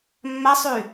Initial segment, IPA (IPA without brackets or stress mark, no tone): mː